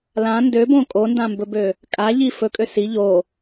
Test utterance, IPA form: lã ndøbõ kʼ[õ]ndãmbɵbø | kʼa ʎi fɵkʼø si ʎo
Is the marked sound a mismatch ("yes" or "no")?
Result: yes